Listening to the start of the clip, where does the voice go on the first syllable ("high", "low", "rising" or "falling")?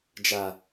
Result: low